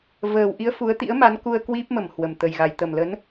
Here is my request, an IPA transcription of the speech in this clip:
v əː˨˩ w ʔ i˧ ə̯ f u˨˦ ə̯ t̪ ḭ˧˥ ə̯ m a˨˦ n k u˧ ə̯ k w i˦˥ p̚ m ə˧˩ m h w ə˨˩ m t̪ ə˨˩ j ɣ a˨˩ j t̪ ə˧˩ m l ə˨˦ n

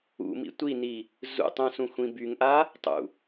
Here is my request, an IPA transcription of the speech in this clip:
ṵ m ḭ tʷ i n i | z ṵ tˤ ũ s ũ xʷ ĩ b y ŋ ʔ a | tˤ ṵ

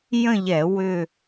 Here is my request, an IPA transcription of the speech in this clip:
j ə̃˥˧ ʎ ɛ˧˩˧ w ʏ˥˧

